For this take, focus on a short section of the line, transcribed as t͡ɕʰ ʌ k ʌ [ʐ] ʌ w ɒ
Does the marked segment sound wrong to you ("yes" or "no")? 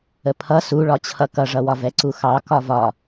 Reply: no